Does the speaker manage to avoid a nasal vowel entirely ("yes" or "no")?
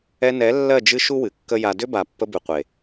yes